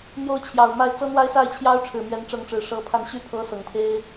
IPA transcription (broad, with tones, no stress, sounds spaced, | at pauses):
n̪ j o˦ ʊ̯ t͡ɕʰ j ɑ˨˩ ʊ̯ m a˥˨ ɪ̯ t͡s ɤ˦ n̪ w a˦ ɪ̯ s a˥˨ ɪ̯ t͡ɕʰ j ɑ˦ ʊ̯ ʈ͡ʂʰ ɻ̩˨˩ m ɥ ɛ˨˦ n ʈ͡ʂ ɤ˨˦ ŋ ʈ͡ʂ ɻ̩˨˩ ʂ ɤ˨˦ pʰ a˧ n ɕ y˦ pʰ ɤ˦ s ɤ˨˩ ŋ pʰ e˦ ɪ̯